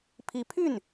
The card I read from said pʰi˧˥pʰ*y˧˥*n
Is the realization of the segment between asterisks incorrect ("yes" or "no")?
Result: yes